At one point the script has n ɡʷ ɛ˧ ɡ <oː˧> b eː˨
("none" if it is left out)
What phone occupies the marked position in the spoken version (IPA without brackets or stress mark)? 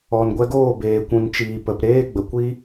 oː˦˨